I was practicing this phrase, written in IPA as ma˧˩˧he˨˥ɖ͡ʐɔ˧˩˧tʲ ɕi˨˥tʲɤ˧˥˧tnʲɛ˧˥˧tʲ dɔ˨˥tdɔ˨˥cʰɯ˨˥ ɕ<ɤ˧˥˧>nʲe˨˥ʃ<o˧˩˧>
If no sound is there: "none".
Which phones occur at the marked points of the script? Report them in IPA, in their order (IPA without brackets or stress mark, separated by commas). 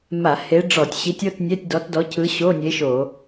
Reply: o˧˥˧, o˧˩˧